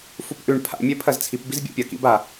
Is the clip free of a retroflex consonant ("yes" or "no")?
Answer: no